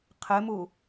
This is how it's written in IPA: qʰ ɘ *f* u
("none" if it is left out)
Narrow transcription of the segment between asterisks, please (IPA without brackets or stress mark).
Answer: m